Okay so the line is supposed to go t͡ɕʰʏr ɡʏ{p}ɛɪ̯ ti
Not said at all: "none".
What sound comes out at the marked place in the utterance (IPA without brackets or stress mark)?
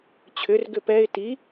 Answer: p